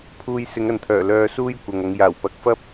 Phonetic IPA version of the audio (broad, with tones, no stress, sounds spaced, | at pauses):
pʰ uː˧ j s ɪ˨˧ ŋ ɐ˨ n t̪ʰ œː˨˩ l œː˧ s uː˥ j kʷ ɐ˨ ŋ ɐ˨˧ ŋ j aː˨˩ w p ɐ˨˥ k̚ f ɐ˥ p̚